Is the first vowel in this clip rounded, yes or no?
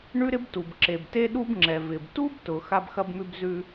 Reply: yes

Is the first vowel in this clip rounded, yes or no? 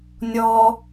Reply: yes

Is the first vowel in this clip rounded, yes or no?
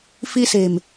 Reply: no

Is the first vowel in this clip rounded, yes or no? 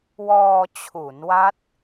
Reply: yes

